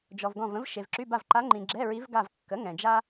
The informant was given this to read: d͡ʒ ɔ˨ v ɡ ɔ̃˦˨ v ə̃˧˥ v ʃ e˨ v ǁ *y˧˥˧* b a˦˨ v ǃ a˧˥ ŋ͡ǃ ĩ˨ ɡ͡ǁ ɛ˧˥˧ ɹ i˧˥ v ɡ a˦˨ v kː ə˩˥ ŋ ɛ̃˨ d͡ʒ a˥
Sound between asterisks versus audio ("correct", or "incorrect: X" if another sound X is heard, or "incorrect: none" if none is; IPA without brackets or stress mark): correct